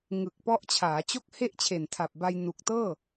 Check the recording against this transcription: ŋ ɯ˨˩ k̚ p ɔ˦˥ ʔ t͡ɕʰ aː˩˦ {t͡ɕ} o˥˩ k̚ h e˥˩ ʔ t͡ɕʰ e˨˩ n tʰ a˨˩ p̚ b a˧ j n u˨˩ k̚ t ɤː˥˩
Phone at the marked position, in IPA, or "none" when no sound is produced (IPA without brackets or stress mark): t͡ɕ